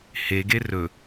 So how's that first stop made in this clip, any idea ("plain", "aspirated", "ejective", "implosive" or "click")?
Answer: plain